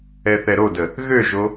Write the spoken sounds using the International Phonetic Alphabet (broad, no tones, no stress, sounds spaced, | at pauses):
ɛ θ ɛ ɾ o d ə | ɣ ø ʒ o